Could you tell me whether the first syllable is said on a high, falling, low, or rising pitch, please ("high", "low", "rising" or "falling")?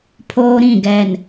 high